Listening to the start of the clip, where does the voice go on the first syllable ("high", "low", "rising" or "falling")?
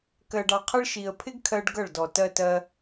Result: low